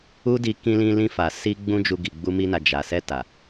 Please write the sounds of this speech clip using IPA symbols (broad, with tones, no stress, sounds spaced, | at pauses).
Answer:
u˦ d i˧ k ĩ˧ l ĩ˧ l ĩ˧ f a˨ s i˧ ɡ͡b ũ˦ d͡ʒ u˧ ɡ i˨ ɡ͡b u˧ m i˧ n a˨ d͡ʒ a˨ s ɛ˧ t a˨